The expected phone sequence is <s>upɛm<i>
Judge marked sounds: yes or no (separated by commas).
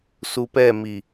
yes, yes